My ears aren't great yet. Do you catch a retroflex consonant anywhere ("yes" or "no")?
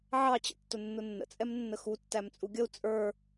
no